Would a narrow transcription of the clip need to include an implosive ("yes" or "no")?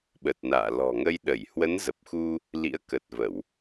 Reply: yes